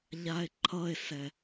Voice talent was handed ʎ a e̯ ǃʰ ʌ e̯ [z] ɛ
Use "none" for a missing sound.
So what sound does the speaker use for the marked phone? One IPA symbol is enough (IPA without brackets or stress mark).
s